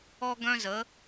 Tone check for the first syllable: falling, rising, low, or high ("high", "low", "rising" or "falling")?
high